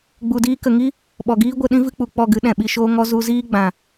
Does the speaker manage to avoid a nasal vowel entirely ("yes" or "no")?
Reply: no